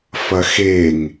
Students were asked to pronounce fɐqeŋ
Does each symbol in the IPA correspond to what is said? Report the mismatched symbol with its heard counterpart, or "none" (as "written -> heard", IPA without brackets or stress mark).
q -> x